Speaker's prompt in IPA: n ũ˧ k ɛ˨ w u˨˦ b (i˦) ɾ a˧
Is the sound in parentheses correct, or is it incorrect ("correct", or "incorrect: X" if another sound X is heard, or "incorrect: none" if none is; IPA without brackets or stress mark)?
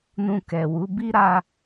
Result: correct